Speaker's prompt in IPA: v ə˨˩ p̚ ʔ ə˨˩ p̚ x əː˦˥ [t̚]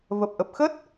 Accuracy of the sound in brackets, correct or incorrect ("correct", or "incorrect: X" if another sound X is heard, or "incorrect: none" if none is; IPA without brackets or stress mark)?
correct